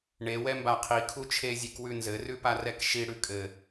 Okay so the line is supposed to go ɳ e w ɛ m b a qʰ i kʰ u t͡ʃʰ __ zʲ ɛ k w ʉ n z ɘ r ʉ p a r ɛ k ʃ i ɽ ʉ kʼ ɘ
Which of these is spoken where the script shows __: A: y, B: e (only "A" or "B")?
B